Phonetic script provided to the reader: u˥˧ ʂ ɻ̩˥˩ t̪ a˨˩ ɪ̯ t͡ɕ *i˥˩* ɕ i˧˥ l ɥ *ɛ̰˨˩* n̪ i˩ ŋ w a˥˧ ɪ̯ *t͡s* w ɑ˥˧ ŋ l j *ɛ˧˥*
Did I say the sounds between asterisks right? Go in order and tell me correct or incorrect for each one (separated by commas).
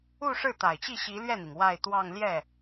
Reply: correct, incorrect, incorrect, incorrect